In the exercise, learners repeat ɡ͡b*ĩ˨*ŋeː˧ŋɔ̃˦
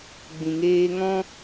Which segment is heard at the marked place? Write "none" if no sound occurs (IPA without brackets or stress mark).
ĩ˨